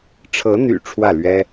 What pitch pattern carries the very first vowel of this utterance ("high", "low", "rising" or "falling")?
rising